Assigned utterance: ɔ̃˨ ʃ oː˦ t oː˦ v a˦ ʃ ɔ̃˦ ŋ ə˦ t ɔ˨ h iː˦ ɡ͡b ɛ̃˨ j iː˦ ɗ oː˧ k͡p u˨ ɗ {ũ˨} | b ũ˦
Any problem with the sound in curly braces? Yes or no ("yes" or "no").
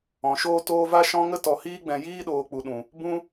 no